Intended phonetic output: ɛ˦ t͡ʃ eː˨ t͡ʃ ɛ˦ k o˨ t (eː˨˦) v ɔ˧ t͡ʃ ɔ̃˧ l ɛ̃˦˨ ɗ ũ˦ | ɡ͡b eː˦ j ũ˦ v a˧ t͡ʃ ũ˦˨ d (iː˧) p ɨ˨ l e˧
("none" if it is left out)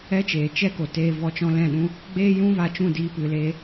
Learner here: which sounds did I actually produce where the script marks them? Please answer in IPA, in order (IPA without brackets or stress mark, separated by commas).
eː˧, iː˧